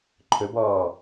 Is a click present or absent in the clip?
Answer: present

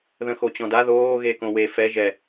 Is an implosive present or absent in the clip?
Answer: absent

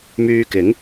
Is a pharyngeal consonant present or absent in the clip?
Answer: absent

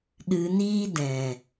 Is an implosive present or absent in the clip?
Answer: present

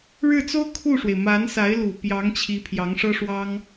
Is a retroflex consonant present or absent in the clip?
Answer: present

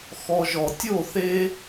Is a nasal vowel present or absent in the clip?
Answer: absent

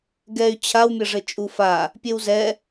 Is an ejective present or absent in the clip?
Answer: present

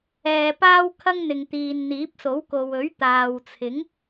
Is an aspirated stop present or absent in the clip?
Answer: present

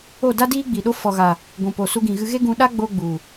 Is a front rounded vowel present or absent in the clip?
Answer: absent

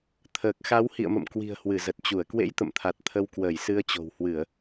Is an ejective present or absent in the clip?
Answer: absent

